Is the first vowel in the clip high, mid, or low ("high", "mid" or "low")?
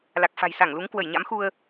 low